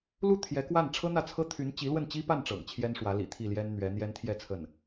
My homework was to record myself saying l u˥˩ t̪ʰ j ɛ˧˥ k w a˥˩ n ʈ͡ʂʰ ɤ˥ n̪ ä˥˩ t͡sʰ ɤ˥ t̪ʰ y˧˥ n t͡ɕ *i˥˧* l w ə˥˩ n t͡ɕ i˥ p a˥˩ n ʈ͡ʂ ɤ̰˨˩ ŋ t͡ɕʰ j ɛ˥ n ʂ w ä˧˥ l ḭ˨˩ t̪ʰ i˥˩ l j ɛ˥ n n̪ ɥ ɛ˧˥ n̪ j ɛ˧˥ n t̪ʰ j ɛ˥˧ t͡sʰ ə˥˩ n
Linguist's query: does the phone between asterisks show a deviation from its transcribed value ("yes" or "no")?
yes